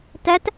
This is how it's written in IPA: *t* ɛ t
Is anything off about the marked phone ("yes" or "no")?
no